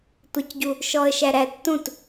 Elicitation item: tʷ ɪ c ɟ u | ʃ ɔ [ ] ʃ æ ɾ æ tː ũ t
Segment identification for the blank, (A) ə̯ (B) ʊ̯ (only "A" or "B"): A